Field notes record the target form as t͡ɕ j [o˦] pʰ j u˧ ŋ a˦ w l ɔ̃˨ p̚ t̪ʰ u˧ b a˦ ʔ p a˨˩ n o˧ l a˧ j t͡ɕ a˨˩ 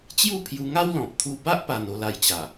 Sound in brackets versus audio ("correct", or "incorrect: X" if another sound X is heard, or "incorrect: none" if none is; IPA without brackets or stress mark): incorrect: u˦